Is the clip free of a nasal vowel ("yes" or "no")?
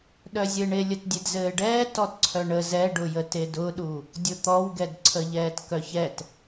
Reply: yes